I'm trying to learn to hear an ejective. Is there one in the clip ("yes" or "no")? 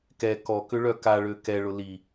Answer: no